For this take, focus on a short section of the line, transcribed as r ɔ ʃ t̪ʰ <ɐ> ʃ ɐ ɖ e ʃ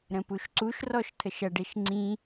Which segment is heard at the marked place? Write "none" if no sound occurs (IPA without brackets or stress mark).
ə